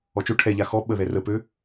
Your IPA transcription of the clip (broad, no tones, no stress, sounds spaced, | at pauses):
ɔ t͡ʃ o ʈʰ ɛ ʎ a x ɔ ɓ ə ð ɛ r ə p ø